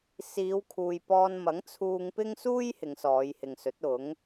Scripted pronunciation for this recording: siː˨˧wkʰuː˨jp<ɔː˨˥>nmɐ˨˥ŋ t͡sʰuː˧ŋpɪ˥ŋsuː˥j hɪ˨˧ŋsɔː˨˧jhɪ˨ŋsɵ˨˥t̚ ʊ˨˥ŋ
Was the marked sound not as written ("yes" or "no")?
yes